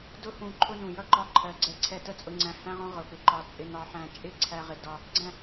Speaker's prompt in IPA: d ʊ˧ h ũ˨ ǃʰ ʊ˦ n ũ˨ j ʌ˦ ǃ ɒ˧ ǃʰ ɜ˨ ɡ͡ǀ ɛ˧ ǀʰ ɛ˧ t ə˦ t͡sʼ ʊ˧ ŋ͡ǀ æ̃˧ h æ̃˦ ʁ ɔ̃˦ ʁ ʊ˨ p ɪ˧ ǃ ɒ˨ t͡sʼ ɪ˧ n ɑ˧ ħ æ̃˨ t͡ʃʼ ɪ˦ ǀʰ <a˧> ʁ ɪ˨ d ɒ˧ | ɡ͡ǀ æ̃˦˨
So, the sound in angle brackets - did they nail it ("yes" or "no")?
no